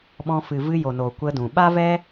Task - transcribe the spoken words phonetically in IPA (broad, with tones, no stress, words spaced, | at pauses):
ɓɔ̃˧fɨ˨ vɨ˧jo˨ noː˨kʷə˧dũ˨ ɓa˦vɛ˦